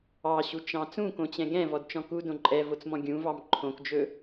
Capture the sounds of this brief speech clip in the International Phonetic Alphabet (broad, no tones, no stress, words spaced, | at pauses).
ɑɕut͡ʃɑ̃ t͡sũkõt͡ɕɛ̃ ɡɛ̃vɔdt͡ʃɔ̃ kudõ ǃʼɛvot͡smɔ̃ ɡʲũvɑm ǃʰõkd͡ʒɵ